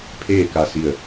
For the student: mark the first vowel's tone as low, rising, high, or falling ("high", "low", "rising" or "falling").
falling